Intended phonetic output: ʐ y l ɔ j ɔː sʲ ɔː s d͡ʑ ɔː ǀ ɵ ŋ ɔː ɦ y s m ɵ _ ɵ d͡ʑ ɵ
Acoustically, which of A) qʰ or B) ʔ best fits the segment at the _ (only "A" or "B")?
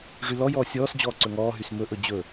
B